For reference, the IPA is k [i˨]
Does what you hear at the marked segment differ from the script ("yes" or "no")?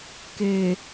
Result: yes